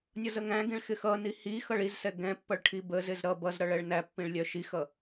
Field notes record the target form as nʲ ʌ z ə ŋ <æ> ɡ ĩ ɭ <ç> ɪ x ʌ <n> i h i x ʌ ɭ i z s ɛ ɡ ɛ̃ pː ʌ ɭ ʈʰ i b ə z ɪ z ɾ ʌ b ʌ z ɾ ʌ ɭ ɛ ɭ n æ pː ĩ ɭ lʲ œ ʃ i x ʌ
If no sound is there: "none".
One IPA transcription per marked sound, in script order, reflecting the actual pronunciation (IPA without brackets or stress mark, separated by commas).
æ̃, x, n